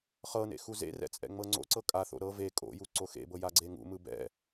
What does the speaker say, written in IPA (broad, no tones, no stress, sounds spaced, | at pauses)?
χ ɤ n ḛ x u z ḛ r ɛ̰ t͡sʼ ɛ̰ ŋ͡m ɤ ŋ͡ǀ o̰ ǀ ɤ kʼ a θ o̰ ɾ ɤ v e kʼ o̰ j u ǀ o x ḛ b ɤ j a ɡ͡ǀ e ŋ ṵ m ɯ b ɛ̰